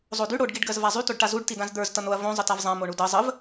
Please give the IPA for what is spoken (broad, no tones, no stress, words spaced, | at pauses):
zˤody ɽoɖ ɡiɖɡɜzvazˤy toɖʈazuɖ tidãzd̪ə˞z tʌnoɐ̯ võ zˤətavzˤã moɳudʌ zˤəv